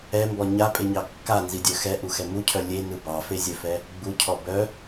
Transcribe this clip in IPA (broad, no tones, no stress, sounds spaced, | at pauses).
ɛ m b ɔ ɲ a pʼ e ɲ ɑ kː a n z i dʲ œ x ɛ ʔ u x ɛ m u cʰ œ lʲ e n ɯ b ɑ f e zʲ œ f ɛ | ɡ͡b u cʰ ɔ b œ